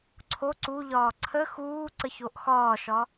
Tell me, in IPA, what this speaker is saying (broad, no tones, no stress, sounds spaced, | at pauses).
ǀʰ o ǀ u ʎ ɒː ǀʰ ə x uː ǀ ə ç o ʔ x ɒː ʃ ɒ